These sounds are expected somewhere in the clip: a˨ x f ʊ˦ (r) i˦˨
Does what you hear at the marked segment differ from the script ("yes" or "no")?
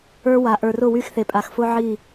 yes